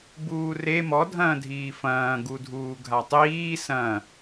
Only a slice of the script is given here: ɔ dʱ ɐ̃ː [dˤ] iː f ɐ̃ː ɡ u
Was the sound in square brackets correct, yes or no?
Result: no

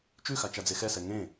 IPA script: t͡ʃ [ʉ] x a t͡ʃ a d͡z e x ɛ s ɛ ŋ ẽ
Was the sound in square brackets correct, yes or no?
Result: yes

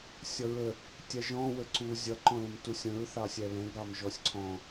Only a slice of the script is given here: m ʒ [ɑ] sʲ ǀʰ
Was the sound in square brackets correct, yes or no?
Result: no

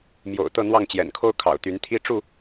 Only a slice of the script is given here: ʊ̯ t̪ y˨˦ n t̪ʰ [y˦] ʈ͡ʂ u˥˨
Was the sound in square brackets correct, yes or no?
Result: no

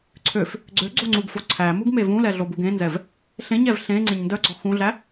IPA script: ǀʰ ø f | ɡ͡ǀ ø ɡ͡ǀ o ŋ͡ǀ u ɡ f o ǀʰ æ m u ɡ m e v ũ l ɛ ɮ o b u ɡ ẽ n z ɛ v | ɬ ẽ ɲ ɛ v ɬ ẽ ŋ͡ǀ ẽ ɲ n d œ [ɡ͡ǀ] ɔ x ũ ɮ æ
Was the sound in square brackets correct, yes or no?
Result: yes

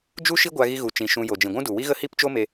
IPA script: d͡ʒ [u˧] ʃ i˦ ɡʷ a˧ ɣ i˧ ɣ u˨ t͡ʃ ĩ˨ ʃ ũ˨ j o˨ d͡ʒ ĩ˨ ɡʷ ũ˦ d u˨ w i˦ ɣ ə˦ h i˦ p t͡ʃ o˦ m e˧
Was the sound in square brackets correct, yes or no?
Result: no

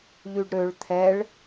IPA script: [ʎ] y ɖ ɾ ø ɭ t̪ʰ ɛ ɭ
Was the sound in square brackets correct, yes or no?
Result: yes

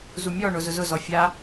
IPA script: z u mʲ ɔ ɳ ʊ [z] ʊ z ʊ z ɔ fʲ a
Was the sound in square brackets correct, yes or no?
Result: yes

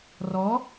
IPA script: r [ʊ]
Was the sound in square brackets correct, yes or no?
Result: no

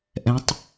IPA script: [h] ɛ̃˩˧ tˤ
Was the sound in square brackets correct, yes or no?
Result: no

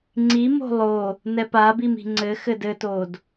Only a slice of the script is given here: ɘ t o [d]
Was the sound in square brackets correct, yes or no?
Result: yes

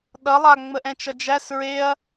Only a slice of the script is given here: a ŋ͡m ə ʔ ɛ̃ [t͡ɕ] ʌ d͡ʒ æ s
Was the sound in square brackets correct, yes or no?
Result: no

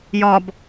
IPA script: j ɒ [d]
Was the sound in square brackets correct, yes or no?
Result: no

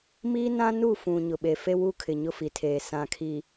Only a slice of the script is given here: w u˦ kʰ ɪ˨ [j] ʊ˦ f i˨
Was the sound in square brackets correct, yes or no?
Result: no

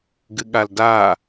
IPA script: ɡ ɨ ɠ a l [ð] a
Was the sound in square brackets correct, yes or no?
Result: no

